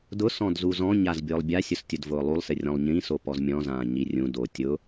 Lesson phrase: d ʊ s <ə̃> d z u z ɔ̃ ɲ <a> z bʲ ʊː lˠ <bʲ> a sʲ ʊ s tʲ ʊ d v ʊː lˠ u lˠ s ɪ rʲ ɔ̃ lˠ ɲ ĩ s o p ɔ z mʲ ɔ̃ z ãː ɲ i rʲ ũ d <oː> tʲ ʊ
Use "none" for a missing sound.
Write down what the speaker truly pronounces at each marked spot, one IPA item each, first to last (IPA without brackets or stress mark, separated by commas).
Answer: ɔ̃, a, bʲ, oː